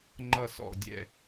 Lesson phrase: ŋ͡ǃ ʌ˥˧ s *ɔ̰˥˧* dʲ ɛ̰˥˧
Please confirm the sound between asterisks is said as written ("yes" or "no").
yes